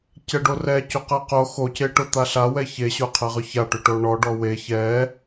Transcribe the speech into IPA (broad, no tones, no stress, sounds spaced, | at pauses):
c ɛ ɖ o r ɛ c o q ɛ q o x o c e ʈ ʊ t̪ a ɬ a w ɛ ç e ɕ ʊ qʰ ɛ ʁ ʏ ç a ʈ ʏ ʈ o ɳ ɔ ɖ ɔ w e ç ɛ